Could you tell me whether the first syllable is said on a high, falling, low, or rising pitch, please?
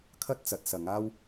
high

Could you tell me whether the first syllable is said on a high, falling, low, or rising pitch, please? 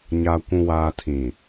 low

